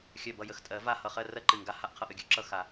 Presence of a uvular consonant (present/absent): present